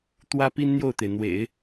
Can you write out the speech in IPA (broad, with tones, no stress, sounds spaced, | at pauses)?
t̪ w ä˥ p i˥ n n̪ j o˥˩ ʊ̯ t̪ e˩ ɪ̯ n̪ w ḛ˨˩˦ ɪ̯